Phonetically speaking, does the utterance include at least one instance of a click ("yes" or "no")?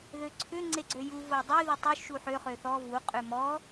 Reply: yes